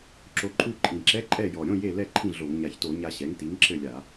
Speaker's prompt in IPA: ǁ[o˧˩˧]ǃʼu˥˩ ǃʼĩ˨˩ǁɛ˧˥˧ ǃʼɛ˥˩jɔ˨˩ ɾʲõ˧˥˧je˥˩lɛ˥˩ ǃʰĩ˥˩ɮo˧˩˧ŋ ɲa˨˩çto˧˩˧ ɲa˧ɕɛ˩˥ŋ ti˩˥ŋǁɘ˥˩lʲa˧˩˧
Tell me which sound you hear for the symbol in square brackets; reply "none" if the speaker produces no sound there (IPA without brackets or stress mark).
o˧